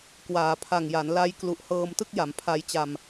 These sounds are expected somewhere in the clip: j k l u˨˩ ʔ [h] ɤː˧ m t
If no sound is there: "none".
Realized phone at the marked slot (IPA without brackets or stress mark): h